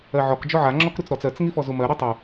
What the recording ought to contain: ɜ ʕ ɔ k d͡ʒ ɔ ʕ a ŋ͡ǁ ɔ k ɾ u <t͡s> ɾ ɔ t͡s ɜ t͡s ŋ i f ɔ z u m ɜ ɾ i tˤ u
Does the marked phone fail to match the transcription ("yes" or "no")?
no